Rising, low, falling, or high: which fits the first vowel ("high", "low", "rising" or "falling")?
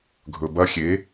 low